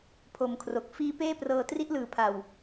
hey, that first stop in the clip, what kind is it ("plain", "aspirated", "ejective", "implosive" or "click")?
aspirated